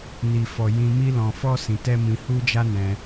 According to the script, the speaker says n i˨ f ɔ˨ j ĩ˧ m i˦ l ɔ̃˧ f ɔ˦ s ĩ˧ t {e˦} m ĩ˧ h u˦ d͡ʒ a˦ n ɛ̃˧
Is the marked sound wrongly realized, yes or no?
yes